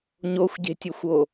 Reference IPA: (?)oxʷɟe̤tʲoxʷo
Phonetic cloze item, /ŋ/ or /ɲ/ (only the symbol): ɲ